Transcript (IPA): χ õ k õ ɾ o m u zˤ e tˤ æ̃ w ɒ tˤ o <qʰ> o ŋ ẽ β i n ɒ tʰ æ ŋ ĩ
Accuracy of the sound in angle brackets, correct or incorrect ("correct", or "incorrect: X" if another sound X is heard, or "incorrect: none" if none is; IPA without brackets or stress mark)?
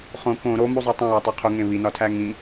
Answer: correct